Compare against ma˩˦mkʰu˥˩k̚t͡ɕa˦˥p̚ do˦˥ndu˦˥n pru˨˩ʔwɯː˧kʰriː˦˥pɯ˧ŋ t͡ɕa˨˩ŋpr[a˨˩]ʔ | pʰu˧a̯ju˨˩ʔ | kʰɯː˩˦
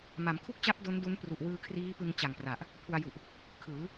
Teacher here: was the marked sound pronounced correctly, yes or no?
yes